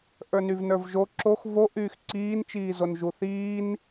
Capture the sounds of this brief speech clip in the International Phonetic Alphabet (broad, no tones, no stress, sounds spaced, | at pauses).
ʔ ə˞ n y v n ə˞ v ʒ o ǁ o x v o ʔ yː x ǀ iː n t͡ʃ iː z o n ʒ u θ iː n